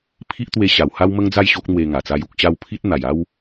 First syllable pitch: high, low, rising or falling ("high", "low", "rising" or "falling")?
high